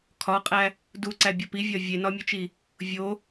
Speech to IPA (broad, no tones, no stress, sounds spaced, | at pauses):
kʰ ɒ qʼ æ | d u ǀ æ bʲ ɒ p i vʲ ɒ vʲ e n ɒ mʲ u t͡ʃ i | vʲ o